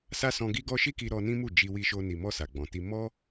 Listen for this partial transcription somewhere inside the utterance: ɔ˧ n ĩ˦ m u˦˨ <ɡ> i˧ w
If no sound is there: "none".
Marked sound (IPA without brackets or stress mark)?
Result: d͡ʒ